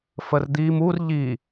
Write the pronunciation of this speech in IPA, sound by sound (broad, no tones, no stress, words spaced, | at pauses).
fərd̪im ur ʎi